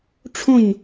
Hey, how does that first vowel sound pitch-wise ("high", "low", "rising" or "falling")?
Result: falling